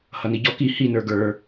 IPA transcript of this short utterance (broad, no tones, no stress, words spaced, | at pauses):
hʌniɟɔ ki hi nə˞ɡə˞